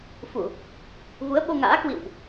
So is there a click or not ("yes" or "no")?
no